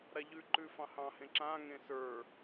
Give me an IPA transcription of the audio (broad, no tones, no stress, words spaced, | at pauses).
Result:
ɾaʎʉ ǃʉfɑ̃hɑ̃hẽ ǁã ŋẽsə˞